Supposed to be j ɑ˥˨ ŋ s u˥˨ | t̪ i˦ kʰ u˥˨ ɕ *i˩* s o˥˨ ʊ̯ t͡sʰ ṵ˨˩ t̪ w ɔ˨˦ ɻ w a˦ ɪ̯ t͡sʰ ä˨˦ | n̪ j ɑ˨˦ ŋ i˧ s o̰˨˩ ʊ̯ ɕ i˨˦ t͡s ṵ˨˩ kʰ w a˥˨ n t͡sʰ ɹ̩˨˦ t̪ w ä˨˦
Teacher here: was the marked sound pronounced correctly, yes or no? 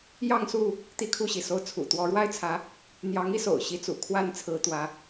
yes